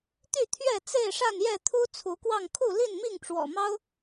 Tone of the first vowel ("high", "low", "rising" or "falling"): falling